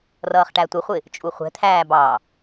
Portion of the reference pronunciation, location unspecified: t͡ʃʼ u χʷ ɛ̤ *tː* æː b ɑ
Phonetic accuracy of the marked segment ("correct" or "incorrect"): incorrect